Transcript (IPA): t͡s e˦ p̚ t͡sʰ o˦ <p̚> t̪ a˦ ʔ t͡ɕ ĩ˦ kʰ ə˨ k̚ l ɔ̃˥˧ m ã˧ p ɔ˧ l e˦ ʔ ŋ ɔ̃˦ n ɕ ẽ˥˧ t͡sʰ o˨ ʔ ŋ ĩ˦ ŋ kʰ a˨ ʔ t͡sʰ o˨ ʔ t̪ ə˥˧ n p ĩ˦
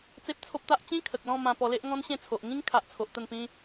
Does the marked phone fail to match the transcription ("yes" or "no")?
no